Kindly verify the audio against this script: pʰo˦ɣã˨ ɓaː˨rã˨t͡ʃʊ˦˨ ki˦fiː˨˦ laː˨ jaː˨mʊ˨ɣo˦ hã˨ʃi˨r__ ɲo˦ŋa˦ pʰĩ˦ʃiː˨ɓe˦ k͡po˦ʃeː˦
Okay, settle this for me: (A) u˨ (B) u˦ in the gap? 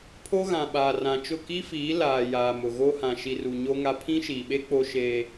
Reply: A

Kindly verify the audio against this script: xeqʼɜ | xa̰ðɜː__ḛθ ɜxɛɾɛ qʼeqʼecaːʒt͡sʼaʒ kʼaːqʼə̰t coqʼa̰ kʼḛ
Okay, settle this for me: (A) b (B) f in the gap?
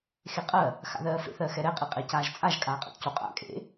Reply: B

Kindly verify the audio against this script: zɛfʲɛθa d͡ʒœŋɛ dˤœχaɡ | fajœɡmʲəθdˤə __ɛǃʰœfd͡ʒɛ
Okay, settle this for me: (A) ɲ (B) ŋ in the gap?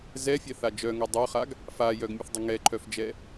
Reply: B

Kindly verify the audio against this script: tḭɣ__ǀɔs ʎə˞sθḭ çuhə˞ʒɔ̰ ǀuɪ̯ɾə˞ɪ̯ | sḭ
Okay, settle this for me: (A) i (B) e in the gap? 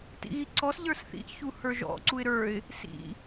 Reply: A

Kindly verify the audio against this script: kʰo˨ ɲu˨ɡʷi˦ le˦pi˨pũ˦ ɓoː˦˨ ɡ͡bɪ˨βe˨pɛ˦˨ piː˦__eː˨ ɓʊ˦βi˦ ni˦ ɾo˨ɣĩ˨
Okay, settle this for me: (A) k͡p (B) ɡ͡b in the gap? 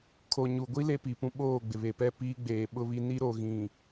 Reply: B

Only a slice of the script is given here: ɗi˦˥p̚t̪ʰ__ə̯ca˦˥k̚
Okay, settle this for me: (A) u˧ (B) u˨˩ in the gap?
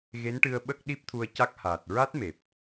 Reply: A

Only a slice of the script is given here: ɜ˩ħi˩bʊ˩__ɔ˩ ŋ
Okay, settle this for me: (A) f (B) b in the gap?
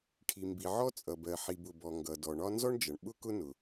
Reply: B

